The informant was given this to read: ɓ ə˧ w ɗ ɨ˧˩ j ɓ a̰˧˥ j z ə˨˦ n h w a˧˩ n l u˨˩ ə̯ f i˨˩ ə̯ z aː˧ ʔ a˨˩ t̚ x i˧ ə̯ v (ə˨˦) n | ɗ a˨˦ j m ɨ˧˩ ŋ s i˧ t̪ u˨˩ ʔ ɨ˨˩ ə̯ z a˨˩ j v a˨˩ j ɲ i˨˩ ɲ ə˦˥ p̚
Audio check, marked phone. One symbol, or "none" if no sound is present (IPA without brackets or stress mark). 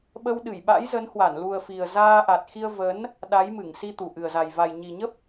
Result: ə˨˦